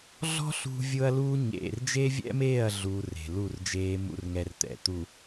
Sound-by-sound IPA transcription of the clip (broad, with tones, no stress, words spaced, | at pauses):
ɮɔ̤˦ ɬṳ˦ vʲʊː˦ɐ̯luː˦ ɲḛ˨rd͡ʒe˦vʲɛ̰˦meː˦˨ɐ̯ ɮuː˦re̤˨ lu˦˨rd͡ʒeː˦mṵ˦r ŋɛ˦rt̪ɛ̰˨ t̪u˨